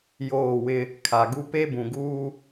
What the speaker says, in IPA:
joː˦˨wɪ˦ | kʰa˨ɡu˦ pe˦bũ˨ɡuː˦

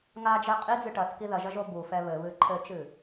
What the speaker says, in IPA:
ŋad͡ʒɛ qʼid͡zɨ ʈɐθki ðɐʒɐʒo bufɛ βɘβɨ ǃʰɘt͡ʃɨ

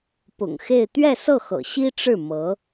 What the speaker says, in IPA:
pʊ̰˨˩ŋxe˥˧ɪ̯ t̪ɥɛ˥˧sɤ˥˩ xɤ̰˨˩ɕi˥ʈ͡ʂɻ̩˥˩ mɤ˧˥

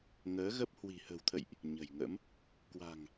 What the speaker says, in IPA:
ŋəː˨˦ɣə˦˥p̚ hwi̤˨˩hə̤˨˩wt̪ʰə̰˧˨jʔ | ɲə̤˨˩jŋə̰˧˥m | kwa̤˨˩ŋ

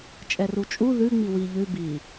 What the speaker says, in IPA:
t͡ʃʼɛrut͡ʃʼu ðʉ ŋ͡miwi ʎʉ bi

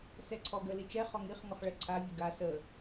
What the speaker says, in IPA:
sɛǀʰɔɡə lit͡ʃɛ χɔŋiχ ŋɔχɭɛǀʰa vʲəɡa sə

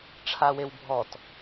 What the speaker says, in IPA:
ʈ͡ʂʰawewbʱɔt

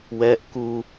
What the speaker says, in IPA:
wɛʔ ku

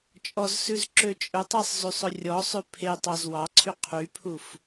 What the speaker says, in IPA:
t͡ʃʼɔzsʉz ǁøt͡ʃʼɵtˤesˤ zysˤɵrʲɔsˤʉ pʰe tˤɑzwɑǀʰy qʰypʰuf

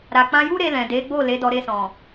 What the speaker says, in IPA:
ɾa˨k͡pã˧ju˦ɾe˧ lɛ̃˨de˨˦ɡ͡bo˦˨ le˨˦dɔ˧ɾe˧sɔ̃˨

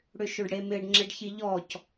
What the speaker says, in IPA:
ɽʏʃøɖɽemɪɖ ŋ͡ǁeɖçiʎɔc

